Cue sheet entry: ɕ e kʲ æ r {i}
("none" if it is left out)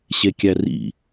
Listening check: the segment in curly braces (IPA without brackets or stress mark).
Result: ḭ